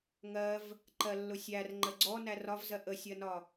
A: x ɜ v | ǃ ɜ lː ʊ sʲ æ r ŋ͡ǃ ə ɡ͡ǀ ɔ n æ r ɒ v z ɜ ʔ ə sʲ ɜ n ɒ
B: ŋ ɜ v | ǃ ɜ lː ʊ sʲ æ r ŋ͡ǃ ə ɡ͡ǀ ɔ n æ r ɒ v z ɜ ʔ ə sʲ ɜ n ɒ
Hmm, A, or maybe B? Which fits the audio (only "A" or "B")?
B